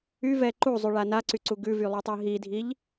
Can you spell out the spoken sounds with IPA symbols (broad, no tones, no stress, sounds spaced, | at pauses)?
y v ɛ ǃ u zˤ y ɭ a n a ǀ y ǀ u ɡ ʉ v y lˠ u tˤ i ɦ i dʱ i ʎ